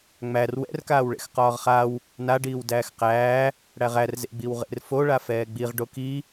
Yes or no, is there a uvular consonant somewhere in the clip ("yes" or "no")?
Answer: yes